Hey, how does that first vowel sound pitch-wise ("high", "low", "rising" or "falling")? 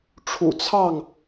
low